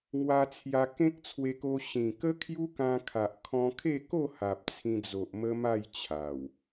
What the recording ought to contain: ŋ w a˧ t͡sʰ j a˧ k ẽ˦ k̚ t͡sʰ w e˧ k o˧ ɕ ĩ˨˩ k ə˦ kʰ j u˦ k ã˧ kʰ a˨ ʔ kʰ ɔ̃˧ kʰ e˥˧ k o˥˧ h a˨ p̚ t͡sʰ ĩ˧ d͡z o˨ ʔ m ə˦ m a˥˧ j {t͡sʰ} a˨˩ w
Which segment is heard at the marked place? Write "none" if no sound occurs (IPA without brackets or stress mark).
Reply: t͡ɕʰ